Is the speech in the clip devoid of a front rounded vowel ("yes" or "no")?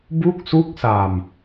yes